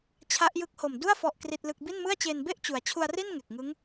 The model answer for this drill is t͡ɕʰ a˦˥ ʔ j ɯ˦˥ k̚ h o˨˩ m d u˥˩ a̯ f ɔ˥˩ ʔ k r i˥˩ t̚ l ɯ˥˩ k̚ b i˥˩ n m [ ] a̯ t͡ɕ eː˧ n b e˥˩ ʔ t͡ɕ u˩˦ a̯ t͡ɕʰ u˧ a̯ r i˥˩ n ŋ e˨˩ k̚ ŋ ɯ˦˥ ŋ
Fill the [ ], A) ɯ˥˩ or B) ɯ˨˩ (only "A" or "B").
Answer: A